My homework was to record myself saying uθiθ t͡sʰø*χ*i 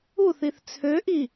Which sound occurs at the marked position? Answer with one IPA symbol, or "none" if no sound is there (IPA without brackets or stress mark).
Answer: ʔ